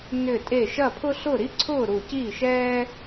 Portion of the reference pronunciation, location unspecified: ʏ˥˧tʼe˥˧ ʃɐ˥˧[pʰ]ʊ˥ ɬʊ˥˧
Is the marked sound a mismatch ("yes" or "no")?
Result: no